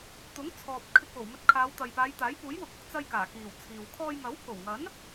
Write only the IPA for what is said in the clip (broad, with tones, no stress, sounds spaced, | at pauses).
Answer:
t̪ ʊ˨˥ ŋ t͡sʰ ɔː˨ p̚ kʰ ɪ˧ k̚ w o˨˩ w m ɵ˧ t̚ kʰ aː˨˧ w t̪ ɐ˨ j p aː˨˧ j t̪ aː˨˥ j p uː˨˥ j w ʊ˨˥ k̚ ʊ˨˥ k̚ t͡s ɐ˧ j k aː˨˩ k iː˨˩ w t͡sʰ iː˨ w kʰ ɔː˧ j ŋ ɐ˨˥ w pʰ o˨˩ w ŋ ɐ˨˥ n